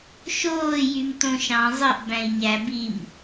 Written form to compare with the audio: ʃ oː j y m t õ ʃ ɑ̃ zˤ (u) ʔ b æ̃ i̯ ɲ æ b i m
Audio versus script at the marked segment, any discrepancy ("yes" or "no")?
yes